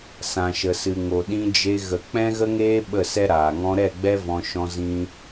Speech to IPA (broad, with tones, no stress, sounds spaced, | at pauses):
s ã˨ ʃ ə˨ s ɨ˨ ŋ o˨ ɗ ĩ˧ d͡ʒ e˧ ɣ ə˨ k͡p ɛ̃˦ ɣ ə˦ ŋ eː˦ ɓ ə˦˨ s ɛ˦ ɾ aː˨ ŋ ɔ̃˧ ɾ ɛ˦˨ ɡ͡b ɛ˦ v ɔ̃˧ ʃ ɔ̃˦ z ĩ˦